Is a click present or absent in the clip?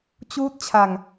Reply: absent